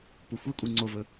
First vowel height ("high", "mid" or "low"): high